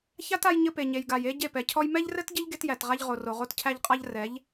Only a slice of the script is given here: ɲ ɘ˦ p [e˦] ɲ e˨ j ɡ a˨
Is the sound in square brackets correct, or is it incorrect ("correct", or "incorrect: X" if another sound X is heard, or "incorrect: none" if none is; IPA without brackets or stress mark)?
incorrect: e˨